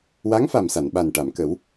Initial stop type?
implosive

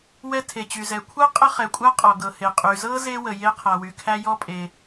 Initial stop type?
aspirated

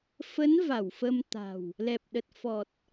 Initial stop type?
plain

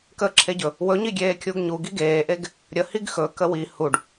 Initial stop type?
plain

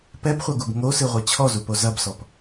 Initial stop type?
plain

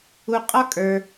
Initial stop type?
ejective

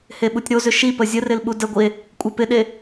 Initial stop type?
implosive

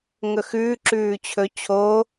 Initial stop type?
click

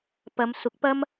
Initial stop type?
plain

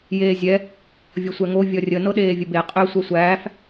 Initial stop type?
implosive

